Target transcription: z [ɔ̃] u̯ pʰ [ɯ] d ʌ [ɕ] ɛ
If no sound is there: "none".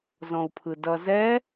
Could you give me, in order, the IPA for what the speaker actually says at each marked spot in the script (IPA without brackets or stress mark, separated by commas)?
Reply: ɔ̃, ɯ, z